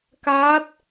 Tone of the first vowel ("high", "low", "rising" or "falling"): rising